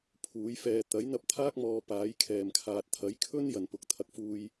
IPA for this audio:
pʰuː˨˥jfɛː˧ t̪ɐ˨˥jn̪ɐ˧p̚t̪ʰaː˥k̚mɔː˨ paː˨˥jkʰɛː˨˩mkʰaː˨t̚ t̪ʰɐ˨˥jkʰɵ˥n jɐ˨˩npʊ˨˥k̚t̪ʰɐ˨k̚fuː˧j

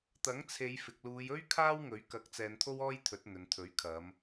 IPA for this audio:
t̪ɐ˨˥ŋt͡sʰe˨˧j fɪ˨k̚luː˨˧jɵ˥ɥ kʰaː˥wŋɵ˨˥ɥ kɐ˨˥k̚ t͡sɛː˧nt̪ʰo˥wɔː˥jt̪ʰɵ˨˥t̚ n̪ɵ˨nt̪ʰɵ˨˥ɥ kʰɐ˨˧m

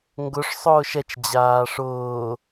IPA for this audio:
ŋɡʊʂ sˤʊːʃɛt͡ʃ d͡ʑaːʂʊː

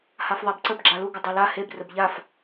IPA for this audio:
hafðˤabǀəb ɡ͡ǁaluɡə dˤela heb rəbʎaf

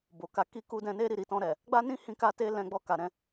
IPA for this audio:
bo˨ ka˧ki˦ ku˧dɛ̃˧ ne˦ɾi˦˨ɾi˨˦tɔ̃˧ ɾɛ˨ | ɡ͡ba˦nĩ˦hĩ˧ ka˦te˦ lɛ̃˧ ɡ͡bɔ˧ka˨ ɾɛ̃˧

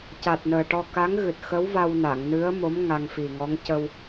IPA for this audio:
ca˨˩t̚nəː˨˩ʈɔ˧ ka˧˥ŋɣɨ˨˩t̚ xə˧˥wva˧wna˨˩˨ŋ nɨ˧˥ə̯mo˧˥m ŋa˧ŋfi˨˩ŋɔ˧˥ŋ cə˧w

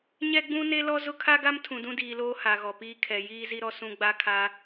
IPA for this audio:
ɲɛ˦ɡ͡bũ˦ne˦lɔ˦ zʊ˦kʰa˦ɡa˦m tʰũ˨dũ˦diː˨loː˦ ha˨ɣɔ˨piː˦kʰɛ˨ jiː˦zi˦ɾɔ˦ sũ˦ ɡ͡ba˦kʰa˦

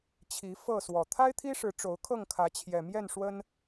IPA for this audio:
t͡ɕʰi˨˦fɤ˥˨swɔ˨˩ t̪ʰa˦ɪ̯t̪ʰi˦ʂɻ̩˨˦ ʈ͡ʂo˨˦ʊ̯kʰɤ˥˨ŋkʰä˨˦ t͡ɕʰjɛ˨˩mjɛ˥˨nʂwə˦n

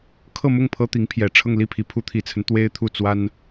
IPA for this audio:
kʰɤ˥˧mʊ˥˩ŋ pʰɤ˥t̪i˧˥ŋ pʰjɛ˨˩ʈ͡ʂʰɤ˥˧ŋ li˥˩pʰi˧˥ pʰu˧˥t̪ʰi˨˩t͡sʰə˦n t̪we˥ɪ̯t̪ʰu˥˩ t͡swa˥n

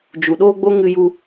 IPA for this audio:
d͡ʒu˨ɗoː˦ɡ͡bo˦ ŋɨ˧ju˧

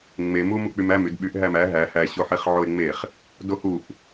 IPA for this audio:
ŋ͡memu muk͡pymæm ydɓyʔ ɦæmæ ɦæ hæɕoħeχ ʕoe̯ŋ͡meχ | dohuʔ

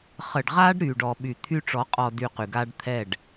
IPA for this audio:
χə˨ɖʁa˦ɖ ɾy˨ɖɔ˨ɓy˨ t̪ʰy˦ʈ͡ʂɔ˨˦qʼɔ˨ dy˦qy˨ ɡa˦ɖ t̪ʰɛ˦˨ɖ

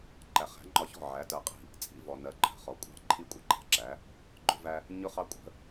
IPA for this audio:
ǃæ˩χæ̤˩˥ŋ͡ǃɒ˧çɔ̤˥˩ ʕæ˩˥tɜ˧qʼi̤˥˩ | t͡sʼḭ˧vɔ˩ nɜ˩ǃʰə̤˩χɔ˩kʷʼɑ̤˥˩ ǃʰi˥kʷʼʌ˥ǃæ̤˩˥ǁæ˩˥ | ɡ͡ǃʊ˥væ˥ | ɲʊ˥χɑ˥ kʷʼə̤˩˥

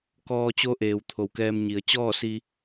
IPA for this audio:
kɔː˧t͡ɕo˧˥ʔeː˩w t̪ʰo˩˧wkɛː˧mɲi˩˧ə̯ t͡ɕɔː˥˨si˧

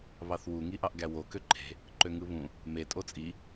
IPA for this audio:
βɑθwu ŋiʔɑʔɡæwo køǃʰe̤ | ǃøŋɯβũ | me tʼot͡sʼi

